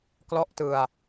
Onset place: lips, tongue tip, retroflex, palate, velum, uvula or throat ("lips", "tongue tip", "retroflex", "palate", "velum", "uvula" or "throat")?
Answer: velum